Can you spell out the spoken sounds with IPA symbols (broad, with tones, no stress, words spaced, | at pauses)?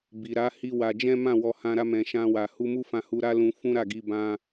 bi˨ ɾa˨˦ hi˦wa˧ d͡ʒɛ̃˦mã˦˨ wɔ˧ hã˧ɾa˧ mɛ̃˨ʃã˧wa˨ hu˧mu˦fã˧ hu˧ɾa˦ lũ˧ fũ˦ɾa˦˨ ɡi˧bã˧